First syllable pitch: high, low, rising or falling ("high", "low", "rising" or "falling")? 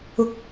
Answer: high